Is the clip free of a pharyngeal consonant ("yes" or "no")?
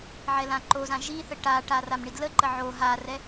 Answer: no